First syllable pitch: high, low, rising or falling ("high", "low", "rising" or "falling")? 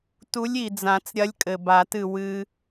rising